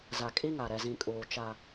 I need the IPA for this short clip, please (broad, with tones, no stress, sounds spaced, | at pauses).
z a˨ kʼ i˦ ŋ a˨ ɾ ɛ˨ z ĩ˨ kʼ uː˨ t͡ʃ a˦